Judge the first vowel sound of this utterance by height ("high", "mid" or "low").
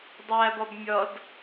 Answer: low